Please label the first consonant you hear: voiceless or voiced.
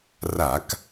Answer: voiced